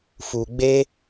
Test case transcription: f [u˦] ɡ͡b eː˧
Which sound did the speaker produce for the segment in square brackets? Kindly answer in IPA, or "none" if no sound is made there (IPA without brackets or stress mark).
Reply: u˨